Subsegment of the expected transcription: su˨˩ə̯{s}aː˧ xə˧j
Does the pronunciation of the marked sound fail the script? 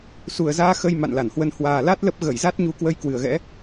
yes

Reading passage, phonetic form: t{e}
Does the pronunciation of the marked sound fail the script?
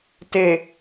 no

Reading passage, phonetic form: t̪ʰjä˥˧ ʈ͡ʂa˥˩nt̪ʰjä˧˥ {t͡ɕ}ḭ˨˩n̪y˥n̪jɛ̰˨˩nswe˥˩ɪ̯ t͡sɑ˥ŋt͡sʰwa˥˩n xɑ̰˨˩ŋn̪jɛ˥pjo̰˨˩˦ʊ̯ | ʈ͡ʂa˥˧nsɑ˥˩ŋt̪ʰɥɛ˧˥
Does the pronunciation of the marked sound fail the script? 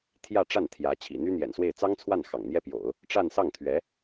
yes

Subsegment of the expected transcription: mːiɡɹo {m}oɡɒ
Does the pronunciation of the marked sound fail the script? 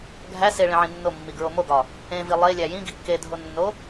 no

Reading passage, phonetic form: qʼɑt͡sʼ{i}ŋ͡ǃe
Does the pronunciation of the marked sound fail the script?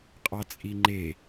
no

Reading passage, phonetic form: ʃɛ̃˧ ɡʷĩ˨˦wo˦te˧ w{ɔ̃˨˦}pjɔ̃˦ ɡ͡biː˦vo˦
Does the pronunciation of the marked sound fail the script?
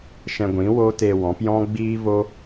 no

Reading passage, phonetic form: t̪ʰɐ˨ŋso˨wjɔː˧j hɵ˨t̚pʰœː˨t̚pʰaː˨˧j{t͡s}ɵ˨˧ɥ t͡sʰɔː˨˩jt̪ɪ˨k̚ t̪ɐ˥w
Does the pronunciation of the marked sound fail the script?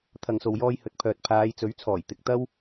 no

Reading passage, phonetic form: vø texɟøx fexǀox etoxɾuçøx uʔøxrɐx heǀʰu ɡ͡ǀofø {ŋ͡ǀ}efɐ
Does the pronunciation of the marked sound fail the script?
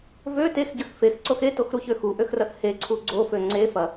no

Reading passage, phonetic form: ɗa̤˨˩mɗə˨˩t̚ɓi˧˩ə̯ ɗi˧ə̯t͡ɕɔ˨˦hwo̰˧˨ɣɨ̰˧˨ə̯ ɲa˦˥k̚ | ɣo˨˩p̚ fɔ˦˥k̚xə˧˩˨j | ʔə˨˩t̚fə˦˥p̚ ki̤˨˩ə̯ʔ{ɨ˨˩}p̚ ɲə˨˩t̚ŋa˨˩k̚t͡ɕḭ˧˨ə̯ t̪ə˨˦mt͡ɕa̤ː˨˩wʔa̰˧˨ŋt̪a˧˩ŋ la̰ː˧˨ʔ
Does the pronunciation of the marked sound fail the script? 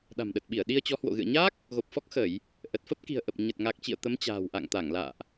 yes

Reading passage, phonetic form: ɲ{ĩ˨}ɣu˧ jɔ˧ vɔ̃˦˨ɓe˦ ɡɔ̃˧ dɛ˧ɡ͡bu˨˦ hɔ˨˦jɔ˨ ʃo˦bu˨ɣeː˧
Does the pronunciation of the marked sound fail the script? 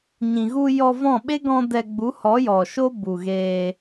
no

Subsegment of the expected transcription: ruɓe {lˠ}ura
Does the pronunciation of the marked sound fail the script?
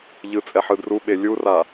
yes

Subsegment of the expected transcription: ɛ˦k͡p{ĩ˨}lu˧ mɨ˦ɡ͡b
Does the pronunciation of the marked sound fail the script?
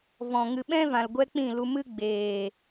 yes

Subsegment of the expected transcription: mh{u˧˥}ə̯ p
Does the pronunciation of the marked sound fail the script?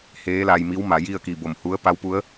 no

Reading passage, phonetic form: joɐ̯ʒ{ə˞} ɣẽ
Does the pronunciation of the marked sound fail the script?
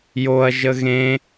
yes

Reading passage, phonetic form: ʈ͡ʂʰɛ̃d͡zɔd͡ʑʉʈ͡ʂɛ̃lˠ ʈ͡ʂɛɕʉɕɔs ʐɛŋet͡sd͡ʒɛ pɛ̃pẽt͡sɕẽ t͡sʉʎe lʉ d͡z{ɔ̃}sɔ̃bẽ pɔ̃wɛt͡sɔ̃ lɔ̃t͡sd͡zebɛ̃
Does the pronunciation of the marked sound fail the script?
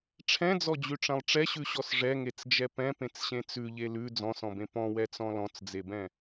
no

